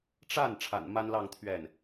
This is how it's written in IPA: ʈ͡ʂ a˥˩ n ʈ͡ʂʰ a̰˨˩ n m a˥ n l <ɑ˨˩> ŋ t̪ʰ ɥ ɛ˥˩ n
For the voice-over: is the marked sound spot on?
no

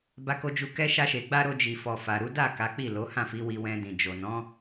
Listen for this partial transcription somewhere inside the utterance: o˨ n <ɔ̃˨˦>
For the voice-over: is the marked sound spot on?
yes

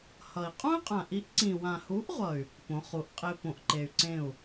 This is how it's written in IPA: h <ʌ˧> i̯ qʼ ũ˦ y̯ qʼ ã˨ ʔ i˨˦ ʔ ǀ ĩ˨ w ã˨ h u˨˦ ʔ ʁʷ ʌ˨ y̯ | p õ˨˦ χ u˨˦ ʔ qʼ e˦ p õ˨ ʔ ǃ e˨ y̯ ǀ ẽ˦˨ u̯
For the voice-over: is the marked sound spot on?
no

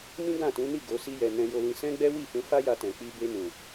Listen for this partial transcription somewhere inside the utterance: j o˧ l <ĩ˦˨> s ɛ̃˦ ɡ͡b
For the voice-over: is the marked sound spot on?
no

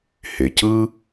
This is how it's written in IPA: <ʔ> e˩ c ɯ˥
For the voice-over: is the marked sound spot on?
no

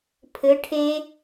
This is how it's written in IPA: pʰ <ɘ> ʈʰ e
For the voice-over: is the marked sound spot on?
yes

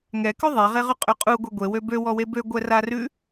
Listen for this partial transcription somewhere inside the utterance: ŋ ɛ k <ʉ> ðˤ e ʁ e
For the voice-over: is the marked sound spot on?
yes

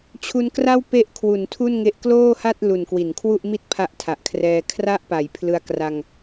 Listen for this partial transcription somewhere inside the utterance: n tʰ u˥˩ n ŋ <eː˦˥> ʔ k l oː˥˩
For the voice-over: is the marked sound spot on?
no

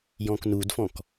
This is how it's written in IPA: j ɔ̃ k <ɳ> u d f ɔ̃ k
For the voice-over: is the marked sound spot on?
no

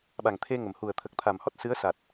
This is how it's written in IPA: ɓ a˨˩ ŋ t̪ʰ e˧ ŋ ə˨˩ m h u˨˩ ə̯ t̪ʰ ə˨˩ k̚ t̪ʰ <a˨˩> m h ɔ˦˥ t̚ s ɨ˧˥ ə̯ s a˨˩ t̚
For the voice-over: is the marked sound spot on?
yes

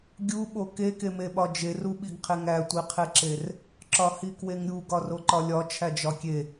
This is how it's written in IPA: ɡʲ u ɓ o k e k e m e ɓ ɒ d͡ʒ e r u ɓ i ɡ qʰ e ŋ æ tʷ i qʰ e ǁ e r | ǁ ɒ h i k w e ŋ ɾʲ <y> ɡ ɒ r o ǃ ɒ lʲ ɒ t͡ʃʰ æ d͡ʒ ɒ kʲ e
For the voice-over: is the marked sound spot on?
no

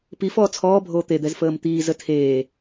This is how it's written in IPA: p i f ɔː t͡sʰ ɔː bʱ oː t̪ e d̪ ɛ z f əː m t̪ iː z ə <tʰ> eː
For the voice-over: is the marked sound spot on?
yes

